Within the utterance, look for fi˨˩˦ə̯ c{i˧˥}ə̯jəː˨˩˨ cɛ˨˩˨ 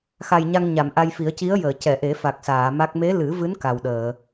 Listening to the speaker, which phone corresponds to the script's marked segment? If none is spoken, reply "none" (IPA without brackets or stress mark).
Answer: i˧˥